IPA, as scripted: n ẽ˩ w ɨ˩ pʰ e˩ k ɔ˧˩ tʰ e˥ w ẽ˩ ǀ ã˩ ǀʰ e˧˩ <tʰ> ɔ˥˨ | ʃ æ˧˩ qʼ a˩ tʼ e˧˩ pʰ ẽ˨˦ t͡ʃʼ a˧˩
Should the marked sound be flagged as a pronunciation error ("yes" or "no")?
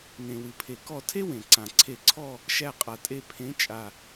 yes